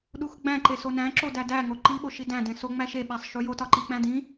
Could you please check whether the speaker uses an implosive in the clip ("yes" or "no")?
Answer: yes